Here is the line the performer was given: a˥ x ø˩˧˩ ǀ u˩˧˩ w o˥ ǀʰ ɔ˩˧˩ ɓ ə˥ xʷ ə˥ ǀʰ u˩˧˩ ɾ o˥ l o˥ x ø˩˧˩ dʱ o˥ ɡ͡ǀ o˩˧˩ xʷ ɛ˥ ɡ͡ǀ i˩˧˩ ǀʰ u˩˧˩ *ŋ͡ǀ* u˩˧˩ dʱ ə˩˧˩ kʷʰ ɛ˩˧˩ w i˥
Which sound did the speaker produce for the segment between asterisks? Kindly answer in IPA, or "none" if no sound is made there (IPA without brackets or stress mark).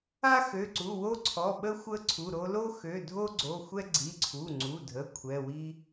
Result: ŋ͡ǀ